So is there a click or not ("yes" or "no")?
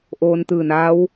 no